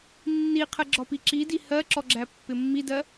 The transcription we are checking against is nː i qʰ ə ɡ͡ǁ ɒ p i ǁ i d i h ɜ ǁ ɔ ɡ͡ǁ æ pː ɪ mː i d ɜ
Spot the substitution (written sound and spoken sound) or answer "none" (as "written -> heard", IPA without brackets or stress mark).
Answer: none